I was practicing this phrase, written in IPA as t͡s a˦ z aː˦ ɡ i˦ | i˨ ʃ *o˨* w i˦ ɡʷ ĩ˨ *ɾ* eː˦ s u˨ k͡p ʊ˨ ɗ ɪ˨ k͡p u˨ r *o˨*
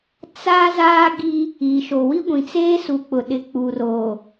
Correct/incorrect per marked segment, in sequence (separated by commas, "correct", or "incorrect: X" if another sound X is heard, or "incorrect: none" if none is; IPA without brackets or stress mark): correct, incorrect: t͡s, correct